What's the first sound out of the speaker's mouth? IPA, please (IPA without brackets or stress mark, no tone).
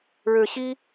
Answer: ɻ